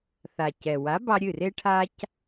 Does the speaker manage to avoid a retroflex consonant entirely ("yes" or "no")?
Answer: no